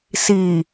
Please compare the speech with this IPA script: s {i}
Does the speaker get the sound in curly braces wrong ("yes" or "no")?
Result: no